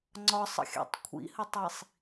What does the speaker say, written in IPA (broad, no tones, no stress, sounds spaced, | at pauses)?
ŋ͡ǀ ɒ sˤ ə̰ xʲ a̰ tˤ kʷʰ ḭ h ə tˤ i sˤ